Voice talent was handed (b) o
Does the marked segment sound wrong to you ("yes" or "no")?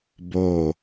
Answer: no